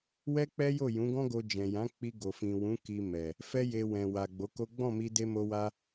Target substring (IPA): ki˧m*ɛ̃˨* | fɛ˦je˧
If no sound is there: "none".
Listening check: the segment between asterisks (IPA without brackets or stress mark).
ɛ˨